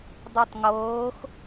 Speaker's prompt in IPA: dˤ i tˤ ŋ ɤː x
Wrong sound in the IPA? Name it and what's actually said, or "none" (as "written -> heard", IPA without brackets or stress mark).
none